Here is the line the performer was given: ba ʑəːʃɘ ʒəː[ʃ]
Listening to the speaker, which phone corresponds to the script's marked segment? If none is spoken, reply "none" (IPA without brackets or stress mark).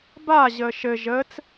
t͡s